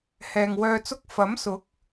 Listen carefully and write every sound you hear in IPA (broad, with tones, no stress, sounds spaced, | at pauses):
h ɛː˨ ŋ w œː˧ t͡s ʊ˥ k̚ f ɐ˨˥ m s ʊ˨˥ k̚